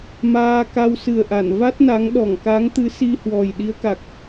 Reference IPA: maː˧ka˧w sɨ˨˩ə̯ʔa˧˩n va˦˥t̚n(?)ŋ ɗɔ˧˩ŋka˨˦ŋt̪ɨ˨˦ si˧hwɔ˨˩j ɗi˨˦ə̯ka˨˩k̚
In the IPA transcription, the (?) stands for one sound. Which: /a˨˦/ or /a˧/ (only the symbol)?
a˨˦